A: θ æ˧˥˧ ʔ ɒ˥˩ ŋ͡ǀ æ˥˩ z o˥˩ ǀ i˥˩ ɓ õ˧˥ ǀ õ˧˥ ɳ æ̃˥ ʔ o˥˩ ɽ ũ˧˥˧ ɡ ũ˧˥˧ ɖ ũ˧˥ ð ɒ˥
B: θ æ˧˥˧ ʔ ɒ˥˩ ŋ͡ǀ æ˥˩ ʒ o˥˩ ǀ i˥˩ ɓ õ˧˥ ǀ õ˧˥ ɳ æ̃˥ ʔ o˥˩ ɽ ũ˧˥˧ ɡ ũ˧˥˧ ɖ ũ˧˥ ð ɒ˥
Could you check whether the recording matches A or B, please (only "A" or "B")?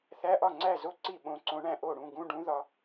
A